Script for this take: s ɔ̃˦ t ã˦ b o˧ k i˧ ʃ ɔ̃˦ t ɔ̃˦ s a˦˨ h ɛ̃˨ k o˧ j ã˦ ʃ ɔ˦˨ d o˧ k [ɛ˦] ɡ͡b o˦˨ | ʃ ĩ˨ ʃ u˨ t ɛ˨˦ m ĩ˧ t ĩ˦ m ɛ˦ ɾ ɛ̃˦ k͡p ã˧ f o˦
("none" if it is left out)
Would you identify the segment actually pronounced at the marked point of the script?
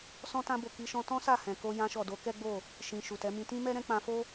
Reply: ɛ˦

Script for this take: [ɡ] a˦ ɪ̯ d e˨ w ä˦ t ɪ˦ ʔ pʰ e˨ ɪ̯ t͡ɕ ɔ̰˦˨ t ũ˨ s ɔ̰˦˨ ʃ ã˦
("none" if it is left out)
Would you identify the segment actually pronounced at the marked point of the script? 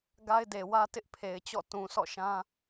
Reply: ɡ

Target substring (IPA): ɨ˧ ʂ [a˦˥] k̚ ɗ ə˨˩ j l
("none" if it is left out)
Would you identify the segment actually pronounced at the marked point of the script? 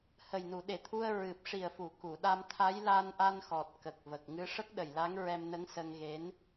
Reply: ə˦˥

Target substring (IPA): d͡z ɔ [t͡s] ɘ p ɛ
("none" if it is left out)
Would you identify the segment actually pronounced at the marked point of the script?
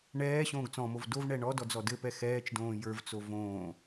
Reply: d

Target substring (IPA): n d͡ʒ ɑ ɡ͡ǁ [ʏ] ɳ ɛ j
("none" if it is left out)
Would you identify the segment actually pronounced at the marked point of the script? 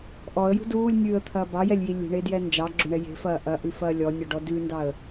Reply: ʏ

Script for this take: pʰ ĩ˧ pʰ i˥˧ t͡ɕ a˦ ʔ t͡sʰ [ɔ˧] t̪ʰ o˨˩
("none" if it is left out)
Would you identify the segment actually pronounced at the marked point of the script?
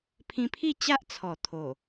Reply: ɔ˨˩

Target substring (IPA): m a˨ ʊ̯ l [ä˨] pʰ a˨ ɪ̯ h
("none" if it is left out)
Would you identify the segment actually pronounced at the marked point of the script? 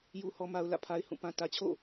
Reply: ä̰˦˨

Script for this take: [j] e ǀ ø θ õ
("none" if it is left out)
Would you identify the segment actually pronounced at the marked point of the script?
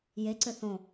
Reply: j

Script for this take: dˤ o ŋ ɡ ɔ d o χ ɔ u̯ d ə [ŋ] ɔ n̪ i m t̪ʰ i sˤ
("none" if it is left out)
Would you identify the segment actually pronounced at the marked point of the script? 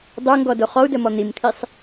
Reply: m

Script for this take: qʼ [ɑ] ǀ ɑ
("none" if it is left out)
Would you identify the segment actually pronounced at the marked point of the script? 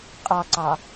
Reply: ɑ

